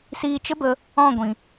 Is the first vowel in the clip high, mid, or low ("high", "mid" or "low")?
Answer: high